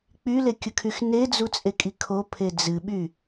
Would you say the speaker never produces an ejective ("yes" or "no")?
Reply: no